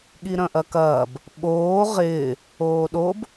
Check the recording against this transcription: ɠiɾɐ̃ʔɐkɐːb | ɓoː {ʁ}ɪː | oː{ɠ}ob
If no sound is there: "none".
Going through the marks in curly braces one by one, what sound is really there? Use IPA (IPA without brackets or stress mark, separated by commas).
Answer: ʁ, ɗ